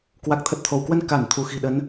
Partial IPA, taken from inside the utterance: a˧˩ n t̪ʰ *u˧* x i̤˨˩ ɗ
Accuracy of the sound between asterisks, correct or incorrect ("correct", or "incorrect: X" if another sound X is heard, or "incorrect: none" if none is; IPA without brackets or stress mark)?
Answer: incorrect: u˧˩